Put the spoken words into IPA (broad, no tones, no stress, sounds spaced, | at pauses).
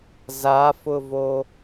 z a f ʊ v o